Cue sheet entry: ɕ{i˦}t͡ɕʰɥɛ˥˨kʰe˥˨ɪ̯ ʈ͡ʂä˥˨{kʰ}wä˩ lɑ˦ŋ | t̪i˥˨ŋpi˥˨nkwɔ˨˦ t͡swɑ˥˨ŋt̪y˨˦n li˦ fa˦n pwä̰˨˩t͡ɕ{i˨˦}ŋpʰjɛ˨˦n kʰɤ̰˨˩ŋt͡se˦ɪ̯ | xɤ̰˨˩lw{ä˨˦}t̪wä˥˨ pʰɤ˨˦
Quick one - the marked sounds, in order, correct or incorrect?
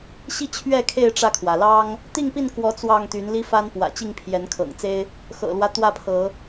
correct, correct, incorrect: i˥˨, incorrect: ä˦

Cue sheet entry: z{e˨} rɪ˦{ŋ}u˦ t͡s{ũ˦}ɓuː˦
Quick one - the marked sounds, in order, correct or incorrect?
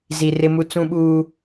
incorrect: i˨, incorrect: m, correct

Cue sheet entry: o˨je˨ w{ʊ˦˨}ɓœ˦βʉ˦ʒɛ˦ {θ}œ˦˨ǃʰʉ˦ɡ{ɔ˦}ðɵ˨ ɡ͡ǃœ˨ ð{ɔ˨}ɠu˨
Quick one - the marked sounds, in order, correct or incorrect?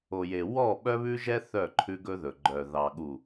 incorrect: ɔ˦˨, correct, incorrect: ɵ˦, incorrect: ɑ˨

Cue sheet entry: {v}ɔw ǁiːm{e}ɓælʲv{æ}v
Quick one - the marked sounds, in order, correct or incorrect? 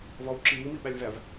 correct, incorrect: i, correct

